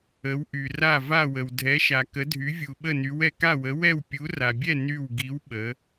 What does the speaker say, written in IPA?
ə˧˥ w ʔ y˧ r a˥˧ v a˥˧ w ə˧ w dʱ ɛ˧˥ ʃ a˧ k ə˧˥ dʱ y˧˥ vʲ u˧ ɓ ə˥˧ n y˧˥ w ɛ˧ k a˥˧ w ə˧˥ w ɛ˥˧ w pʲ u˧˥ r a˧ bʲ ɛ˥˧ n y˥˧ w ɡ i˧˥ w ɓ ə˧˥

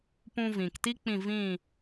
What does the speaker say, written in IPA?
p ũ˧ v ĩ˨ k t i˦ k͡p ĩ˦˨ v ĩ˦˨

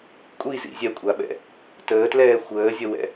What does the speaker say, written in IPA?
kʷʼ i z ḭ zʲ ɛ kʷʼ a ɓ ɛ̰ | t əː t l ɛː xʷ əː zʲ ə w ɛ̰

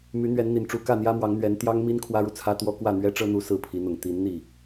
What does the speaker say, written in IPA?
m y˧˥ n̪ ɥ ɛ˧˥ n n̪ i˨˩ n ʈ͡ʂ u˧˥ k ä˥˩ n̪ j ä˥ m w ɑ˧˥ ŋ n̪ ɥ ɛ˧˥ n t̪ j ɑ˥ ŋ m i˥ n kʰ w ä˥ ɻ u˨ t͡sʰ ä˥ t̪ w ɔ˥ k w ä˥˩ n̪ ɥ ɛ˥ ʈ͡ʂ ɤ˥ n̪ u˧˥ s ɹ̩˥˩ pʰ i˧˥ n̪ ʊ˨˩ ŋ t̪ i˧˥ n n̪ i˥˩

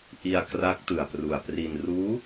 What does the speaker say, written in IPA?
ʔ i˧ a̯ k r a˦˥ k̚ t ɯ˨˩ a̯ p r u˨˩ a̯ p r i˧ n r uː˦˥

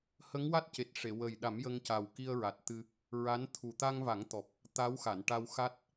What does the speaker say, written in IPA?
h ə˧˥ ŋ w a˦˥ t̚ c e˨˩ t̚ ʂ e˨˩˨ w ə˨˩ j ɗ a˨˩˦ m j ə˧ ŋ c a˨˩ w k i˧ ə̯ ɹ a˨˩ t̚ t̪ ɨ˧ | ɹ a˧˥ n t̪ʰ u˨˩ t̪ a˧ ŋ v a˨˩˦ ŋ t̪ ɔ˨˩ p̚ | t̪ a˧˥ w x a˨˩˨ n ʈ a˧ w x a˦˥ t̚

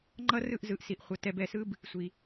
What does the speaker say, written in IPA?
ŋ͡ǃ ʌ˦ r ɯ˦˨ ʔ z ɯ˨ ʔ s i˨ ʔ χʷ ʌ˨ t ɛ˧ b ɛ˨ s ɯ˦ b | sʷ i˨

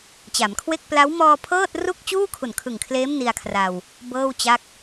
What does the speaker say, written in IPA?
t͡ɕ a˩˦ m kʰ w e˥˩ k̚ p l a˦˥ w m ɔː˧ pʰ ɤː˥˩ t̚ r u˥˩ k̚ t͡ɕ uː˥˩ kʰ u˨˩ n kʰ ɯ˨˩ ŋ kʰ l eː˦˥ m n i˧ a̯ kʰ r a˧ w | b ɤː˥˩ w t͡ɕ a˥˩ k̚

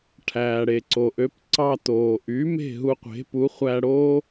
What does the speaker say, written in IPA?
ʈʰ æː˩ ɽ e˩ ǀ o˩ ʔ ø˩˥ p ǀ ɑ˧ t oː˩ ʔ y˩˥ m e̤˥˩ ɦ u˧ qʷ e̤˩˥ p u˩˥ χʷ æ˧ ɽ oː˥

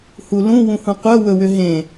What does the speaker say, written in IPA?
h u l ũ w ũ h ũ qʷ œ w ɵ w ʏ ɦ ẽ

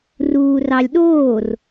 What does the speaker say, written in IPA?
r uː r ɑ lʲ ɗ oː r

